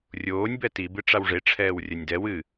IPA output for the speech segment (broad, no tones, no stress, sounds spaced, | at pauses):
rʲ oː nʲ b ɛ t i b ɨ ʈ͡ʂ a w ʐ e ʈ͡ʂʰ ɛː w rʲ ɐ nʲ d ɛ w ɨ